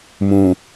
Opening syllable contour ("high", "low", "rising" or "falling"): low